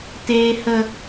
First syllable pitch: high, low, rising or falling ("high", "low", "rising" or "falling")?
low